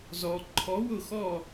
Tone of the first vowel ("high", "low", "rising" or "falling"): low